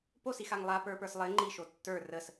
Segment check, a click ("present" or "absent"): present